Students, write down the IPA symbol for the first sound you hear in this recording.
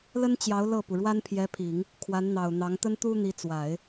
l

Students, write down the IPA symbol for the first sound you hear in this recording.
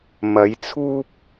m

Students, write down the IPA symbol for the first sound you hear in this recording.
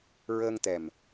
ɹ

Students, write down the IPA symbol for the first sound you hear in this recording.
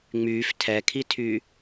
ŋ͡m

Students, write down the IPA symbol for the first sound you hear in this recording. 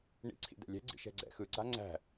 ɳ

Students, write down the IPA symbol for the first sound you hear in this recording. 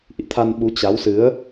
ʔ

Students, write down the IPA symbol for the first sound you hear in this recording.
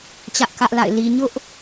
t͡ɕ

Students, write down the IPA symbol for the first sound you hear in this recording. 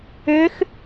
ʏː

